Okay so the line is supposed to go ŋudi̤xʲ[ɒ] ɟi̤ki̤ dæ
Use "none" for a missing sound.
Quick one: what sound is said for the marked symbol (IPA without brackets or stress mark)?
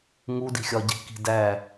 ɒ